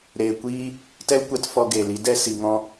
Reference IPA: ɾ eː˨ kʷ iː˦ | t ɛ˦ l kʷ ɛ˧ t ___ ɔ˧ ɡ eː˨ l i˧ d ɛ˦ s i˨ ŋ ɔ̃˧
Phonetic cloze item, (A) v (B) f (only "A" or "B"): B